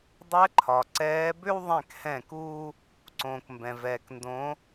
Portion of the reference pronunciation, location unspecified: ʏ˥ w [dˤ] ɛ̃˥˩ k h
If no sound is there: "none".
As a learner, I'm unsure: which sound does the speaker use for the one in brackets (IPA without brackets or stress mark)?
ðˤ